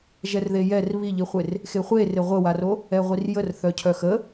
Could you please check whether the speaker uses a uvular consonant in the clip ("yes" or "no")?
yes